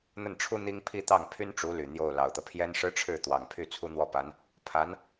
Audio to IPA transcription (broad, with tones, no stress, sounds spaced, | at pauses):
n̪ ə˥˩ n ʈ͡ʂʰ u˥ n̪ i˥ ŋ pʰ i˥˧ t̪ ɑ˥˩ ŋ pʰ y˥ n ʈ͡ʂ u˧˥ l y˨˩ n̪ j o˥˩ ʊ̯ l ɑ˨˩ ʊ̯ t̪ ɤ˦ pʰ j ɛ˥ n ʂ ɻ̩˥ ʈ͡ʂʰ ɻ̩˥˩ t̪ w ɑ˨˩ ŋ pʰ y˥˩ t͡sʰ u˥ n̪ w ɔ˥˩ p a˧˥ n | pʰ a˧˥ n